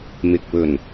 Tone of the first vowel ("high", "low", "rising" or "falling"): low